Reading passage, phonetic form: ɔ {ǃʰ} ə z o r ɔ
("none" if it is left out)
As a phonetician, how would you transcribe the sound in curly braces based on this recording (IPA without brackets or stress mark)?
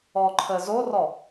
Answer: ǃʰ